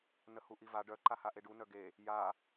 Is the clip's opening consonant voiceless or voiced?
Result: voiced